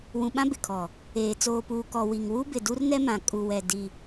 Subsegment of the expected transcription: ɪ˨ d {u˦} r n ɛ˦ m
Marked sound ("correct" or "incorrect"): correct